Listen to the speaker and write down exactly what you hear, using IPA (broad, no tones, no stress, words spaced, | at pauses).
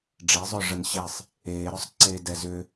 ɖ͡ʐezˤœ ʐənɕesˤ | eːɾœsˤǀeː dɛzʏ